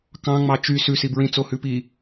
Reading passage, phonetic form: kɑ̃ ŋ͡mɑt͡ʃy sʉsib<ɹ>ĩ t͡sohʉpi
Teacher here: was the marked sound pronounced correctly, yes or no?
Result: yes